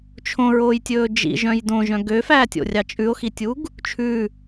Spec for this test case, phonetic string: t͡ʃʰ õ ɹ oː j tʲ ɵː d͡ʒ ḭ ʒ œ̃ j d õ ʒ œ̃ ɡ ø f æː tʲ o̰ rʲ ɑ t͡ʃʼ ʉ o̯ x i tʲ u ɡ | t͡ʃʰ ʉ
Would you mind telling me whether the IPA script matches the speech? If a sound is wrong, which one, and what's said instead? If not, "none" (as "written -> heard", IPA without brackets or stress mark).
none